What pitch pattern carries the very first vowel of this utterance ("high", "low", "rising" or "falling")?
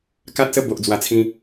high